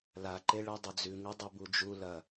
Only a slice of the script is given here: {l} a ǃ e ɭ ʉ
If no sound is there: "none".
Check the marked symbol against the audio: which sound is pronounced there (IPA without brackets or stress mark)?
l